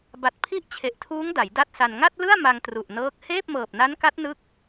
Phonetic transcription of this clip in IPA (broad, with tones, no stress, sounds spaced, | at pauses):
b a˨˩ t̚ pʰ i˦˥ ʔ t͡ɕʰ e˨˩ ʔ tʰ uː˦˥ ŋ d a˩˦ j d a˥˩ t̚ s a˧ n ŋ a˥˩ t̚ l ɯ˥˩ a̯ m a˧ ŋ t r u˨˩ ʔ n ɤː˦˥ k̚ h eː˥˩ p̚ m ɤː˨˩ p̚ n a˦˥ n k a˦˥ t̚ n ɯ˥˩ k̚